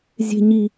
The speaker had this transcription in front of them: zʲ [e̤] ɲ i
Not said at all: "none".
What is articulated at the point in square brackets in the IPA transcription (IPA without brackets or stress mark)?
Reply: e̤